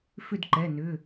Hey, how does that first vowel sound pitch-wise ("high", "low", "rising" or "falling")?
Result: falling